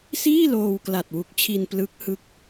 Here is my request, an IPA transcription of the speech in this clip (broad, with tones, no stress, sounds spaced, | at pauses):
s iː˥˩ l oː˧ w k l a˨˩ t̚ w u˨˩ k̚ t͡ɕʰ i˧ n p l ɯ˦˥ k̚ h ɯ˦˥ k̚